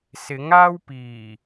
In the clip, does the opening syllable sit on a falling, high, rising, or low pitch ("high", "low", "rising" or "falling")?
rising